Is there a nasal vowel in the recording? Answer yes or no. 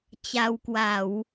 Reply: no